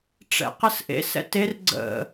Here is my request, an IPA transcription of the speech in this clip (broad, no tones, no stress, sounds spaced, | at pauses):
ʈ͡ʂ ɛ̰ q ə s ʔ ḛ s ɛ̰ t e r ɡ͡ǀ ə̰